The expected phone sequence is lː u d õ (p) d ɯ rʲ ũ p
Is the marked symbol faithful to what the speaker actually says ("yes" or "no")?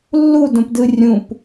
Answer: yes